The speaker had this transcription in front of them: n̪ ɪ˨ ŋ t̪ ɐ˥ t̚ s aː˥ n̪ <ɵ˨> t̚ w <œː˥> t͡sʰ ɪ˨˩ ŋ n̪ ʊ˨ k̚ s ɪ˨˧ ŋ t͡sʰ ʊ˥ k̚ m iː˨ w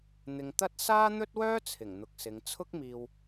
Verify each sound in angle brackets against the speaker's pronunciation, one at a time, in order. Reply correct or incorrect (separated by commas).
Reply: incorrect, correct